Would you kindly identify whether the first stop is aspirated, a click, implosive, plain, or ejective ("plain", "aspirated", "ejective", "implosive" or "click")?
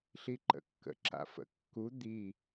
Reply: click